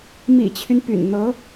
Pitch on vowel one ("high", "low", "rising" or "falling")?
low